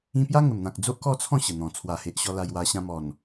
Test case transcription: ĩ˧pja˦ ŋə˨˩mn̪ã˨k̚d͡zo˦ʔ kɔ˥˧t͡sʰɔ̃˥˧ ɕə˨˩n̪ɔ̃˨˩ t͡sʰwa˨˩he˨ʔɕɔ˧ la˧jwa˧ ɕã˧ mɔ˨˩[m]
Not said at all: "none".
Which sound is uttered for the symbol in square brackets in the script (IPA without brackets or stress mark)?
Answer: n